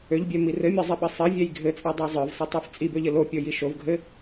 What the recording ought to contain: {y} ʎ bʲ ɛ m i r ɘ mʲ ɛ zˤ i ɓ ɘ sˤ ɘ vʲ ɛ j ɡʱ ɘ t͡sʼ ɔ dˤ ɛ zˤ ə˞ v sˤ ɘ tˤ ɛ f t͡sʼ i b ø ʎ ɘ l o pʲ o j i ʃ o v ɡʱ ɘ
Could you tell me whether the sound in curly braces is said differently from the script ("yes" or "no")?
yes